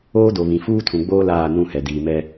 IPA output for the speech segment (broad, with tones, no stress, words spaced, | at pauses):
oː˦do˨βĩ˨ fuː˦tʰũ˨ɡ͡boː˦ laː˦˨nũ˦˨hɛ˨ diː˨mɛ˦